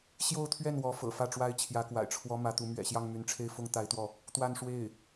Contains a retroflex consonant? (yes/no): yes